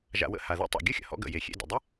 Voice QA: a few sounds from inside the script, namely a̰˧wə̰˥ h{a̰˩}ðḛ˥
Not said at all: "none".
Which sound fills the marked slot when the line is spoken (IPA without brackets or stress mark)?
a˩